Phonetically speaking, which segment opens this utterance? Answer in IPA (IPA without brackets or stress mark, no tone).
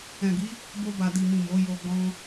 ɛ̃